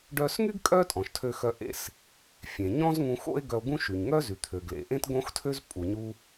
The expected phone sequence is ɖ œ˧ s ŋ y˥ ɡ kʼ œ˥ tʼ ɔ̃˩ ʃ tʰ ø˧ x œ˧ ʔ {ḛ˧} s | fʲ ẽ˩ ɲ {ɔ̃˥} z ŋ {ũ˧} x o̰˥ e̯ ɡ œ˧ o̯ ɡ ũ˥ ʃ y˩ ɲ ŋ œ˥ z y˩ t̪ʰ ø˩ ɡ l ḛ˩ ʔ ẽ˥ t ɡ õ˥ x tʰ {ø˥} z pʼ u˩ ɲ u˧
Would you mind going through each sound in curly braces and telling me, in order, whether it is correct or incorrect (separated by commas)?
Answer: correct, correct, correct, correct